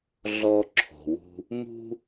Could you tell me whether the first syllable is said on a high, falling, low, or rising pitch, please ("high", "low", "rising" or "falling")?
low